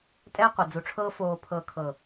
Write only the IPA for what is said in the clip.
tʼ ɛː˦ qʷ ɤ˨ d͡z u˨ ʈ͡ʂʰ ɤː˦ f oː˨ pʰ ɤ˨ kʰ ɤ˨

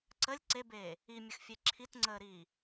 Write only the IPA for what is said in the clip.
ǀ ə lʲ ǀ e b eː | i mʲ ə x fʲ e ǁʰ i t ŋ͡ǀ əː ɾ iː

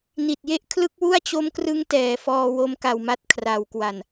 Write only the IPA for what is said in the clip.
n i˨˩ t̚ j e˥˩ ʔ kʰ l ɯ˦˥ k̚ w u˥˩ a̯ t͡ɕ o˦˥ m k r ɯ˦˥ ŋ t ɛː˩˦ f ɔː˧ w o˦˥ m k a˨˩ w m a˦˥ t̚ kʰ r a˩˦ w k w a˨˩ n

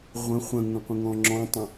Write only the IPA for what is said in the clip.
ʁʷ ə̃ χʷ ə̃ ŋ ə̃ qʷ ə̃ ŋ ɔ̃ ŋ͡ǁ ɔ̃ tˤ ə̃

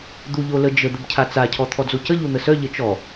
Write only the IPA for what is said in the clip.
d̪ u ʎ o l ə d͡ʒ ə d̪ ə b cʰ a t͡s a cʰ ɔ t̪ʰ ɔ d͡z o c ə ʎ u n̪ ə s œ ʎ ə t͡ʃ ɔ

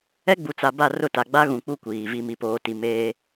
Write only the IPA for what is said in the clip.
ɛ˦ ɡ͡b u˨ t͡s a˨ b a˦˨ r ʊ˦˨ t a˨ ɡ͡b a˦ ɣ ũ˨ k͡p u˦ kʷ iː˨ v i˨ m i˨ p oː˨ t i˨ m eː˦

